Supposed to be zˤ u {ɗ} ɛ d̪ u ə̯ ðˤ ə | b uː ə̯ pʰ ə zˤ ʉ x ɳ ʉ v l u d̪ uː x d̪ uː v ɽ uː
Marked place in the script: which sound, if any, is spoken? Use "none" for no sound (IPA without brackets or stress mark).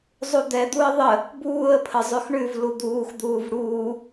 d̪